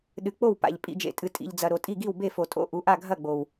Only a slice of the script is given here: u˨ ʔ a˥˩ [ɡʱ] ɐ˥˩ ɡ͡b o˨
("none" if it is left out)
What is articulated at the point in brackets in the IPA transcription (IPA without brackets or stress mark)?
ɡʱ